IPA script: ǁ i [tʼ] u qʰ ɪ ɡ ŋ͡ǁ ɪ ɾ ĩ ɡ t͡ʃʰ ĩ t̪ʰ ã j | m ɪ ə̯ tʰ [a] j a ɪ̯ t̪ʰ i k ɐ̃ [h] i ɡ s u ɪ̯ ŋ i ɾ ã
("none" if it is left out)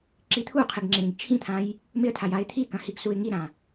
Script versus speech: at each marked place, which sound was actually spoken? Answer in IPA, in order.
t̪ʰ, a, h

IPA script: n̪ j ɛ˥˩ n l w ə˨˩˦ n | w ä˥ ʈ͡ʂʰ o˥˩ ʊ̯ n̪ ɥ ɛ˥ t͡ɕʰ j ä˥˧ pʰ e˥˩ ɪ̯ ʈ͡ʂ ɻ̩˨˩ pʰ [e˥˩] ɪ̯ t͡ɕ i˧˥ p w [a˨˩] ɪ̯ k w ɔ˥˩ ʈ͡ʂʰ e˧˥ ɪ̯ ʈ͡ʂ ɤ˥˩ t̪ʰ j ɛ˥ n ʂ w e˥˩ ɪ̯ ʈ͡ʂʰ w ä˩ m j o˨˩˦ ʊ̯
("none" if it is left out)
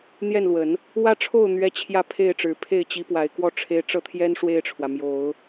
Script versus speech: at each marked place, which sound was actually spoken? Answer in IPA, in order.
e˥˩, a˨˩

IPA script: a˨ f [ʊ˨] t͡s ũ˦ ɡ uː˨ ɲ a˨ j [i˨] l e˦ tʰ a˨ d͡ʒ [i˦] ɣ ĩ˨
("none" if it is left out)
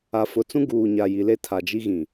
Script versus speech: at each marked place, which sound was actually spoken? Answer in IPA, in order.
ʊ˨, i˨, i˦

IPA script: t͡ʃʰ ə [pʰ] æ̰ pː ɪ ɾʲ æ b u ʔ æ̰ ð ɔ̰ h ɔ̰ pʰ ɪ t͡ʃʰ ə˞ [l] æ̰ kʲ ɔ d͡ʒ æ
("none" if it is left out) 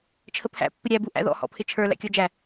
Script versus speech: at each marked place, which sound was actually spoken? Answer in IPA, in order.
pʰ, l

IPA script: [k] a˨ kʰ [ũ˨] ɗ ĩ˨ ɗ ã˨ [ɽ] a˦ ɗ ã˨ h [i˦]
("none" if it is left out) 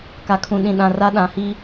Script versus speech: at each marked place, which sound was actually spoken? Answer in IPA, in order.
k, ũ˨, r, i˦

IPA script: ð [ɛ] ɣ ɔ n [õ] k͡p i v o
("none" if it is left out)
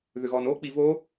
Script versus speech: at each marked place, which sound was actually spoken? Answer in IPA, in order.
ʏ, o

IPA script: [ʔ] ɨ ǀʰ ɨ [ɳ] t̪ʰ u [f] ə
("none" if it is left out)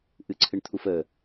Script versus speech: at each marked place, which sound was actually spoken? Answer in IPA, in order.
ʔ, ɳ, f

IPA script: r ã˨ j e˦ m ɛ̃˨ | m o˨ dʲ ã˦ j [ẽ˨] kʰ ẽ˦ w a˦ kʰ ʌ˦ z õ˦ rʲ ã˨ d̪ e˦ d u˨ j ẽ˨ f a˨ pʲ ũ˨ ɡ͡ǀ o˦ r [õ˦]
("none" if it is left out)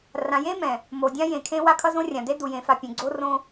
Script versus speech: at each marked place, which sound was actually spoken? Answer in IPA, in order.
ẽ˨, õ˦

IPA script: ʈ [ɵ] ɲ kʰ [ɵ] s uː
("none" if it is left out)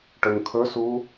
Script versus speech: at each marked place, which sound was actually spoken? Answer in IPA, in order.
ɵ, ɵ

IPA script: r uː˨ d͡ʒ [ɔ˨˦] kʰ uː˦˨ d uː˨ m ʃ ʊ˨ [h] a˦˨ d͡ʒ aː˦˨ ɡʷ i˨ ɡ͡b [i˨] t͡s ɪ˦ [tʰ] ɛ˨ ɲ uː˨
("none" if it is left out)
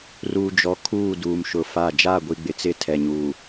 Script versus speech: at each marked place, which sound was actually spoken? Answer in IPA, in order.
ɔ˨˦, f, ɪ˨, tʰ

